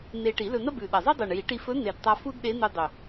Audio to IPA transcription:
n̪ e˧ ʈ i˨˩˦ l ɵ˧ n̪ ɐ˥ b ʉ˨˩ ɗ ɐ˨˩ zˤ ɨ˥ dˤ u˨˩ ɳ j i˨˩˦ ʈ i˧ f ɵ˧˥ n̪ e˨˩ d tˤ a˧ f u˥ d ɗ e˧˥ n̪ u˧ dˤ ɵ˨˩

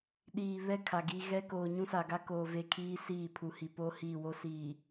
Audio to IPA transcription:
ɗ iː˨ β ɛ˦ kʰ a˨ ɡ i˦ ɣ ɛ˦ k oː˨ ɲ ũ˦ s a˨ ɡ a˦ k oː˨ v e˦ kʰ iː˦ s iː˦˨ pʰ u˨ h i˨ p o˦ h i˦˨ w o˦ s iː˨

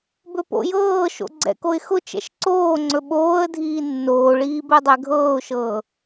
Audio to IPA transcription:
b ɵ p o̰ j ɤː ʃ o̰ ɡ͡ǀ ɛ̰ k o ɪ̯ x ʊ t͡ʃ ɛ̰ ʃ ǀ oː ŋ͡ǀ ɵ ɓ oː ə̯ dʱ iː nː oː ɭ iː b ɛ dˤ ɛ ɡʱ ɤː ʊ̯ ʃ ɤː

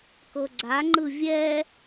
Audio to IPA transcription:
k ɤ ɡ͡ǀ a ŋ͡ǃ ɯ vʲ ɛ

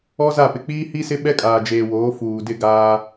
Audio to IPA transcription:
ɔ˦ z a˦˨ p ɪ˨ k͡p iː˦ h i˦ s ɪ˦ ɓ ɛ˦ kʼ aː˨ d͡ʒ eː˨ w oː˨˦ f uː˨ d ɪ˦˨ ɡ aː˦

